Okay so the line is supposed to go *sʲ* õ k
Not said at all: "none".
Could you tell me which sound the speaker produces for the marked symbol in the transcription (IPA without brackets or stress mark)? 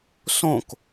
s